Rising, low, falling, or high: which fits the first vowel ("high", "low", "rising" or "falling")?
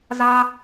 high